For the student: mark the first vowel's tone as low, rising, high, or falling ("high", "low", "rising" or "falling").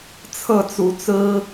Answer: falling